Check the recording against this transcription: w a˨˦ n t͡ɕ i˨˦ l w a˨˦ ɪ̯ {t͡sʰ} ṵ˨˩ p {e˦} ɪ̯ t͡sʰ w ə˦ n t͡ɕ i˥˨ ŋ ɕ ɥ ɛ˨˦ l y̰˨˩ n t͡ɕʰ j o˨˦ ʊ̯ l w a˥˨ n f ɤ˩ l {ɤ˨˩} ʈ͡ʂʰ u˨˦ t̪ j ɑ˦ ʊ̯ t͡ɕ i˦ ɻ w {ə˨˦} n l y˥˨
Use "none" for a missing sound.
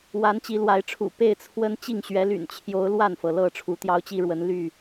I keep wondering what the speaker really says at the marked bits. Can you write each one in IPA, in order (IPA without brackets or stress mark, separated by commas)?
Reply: ʈ͡ʂʰ, e˥˨, ɤ˥˨, ə˨˦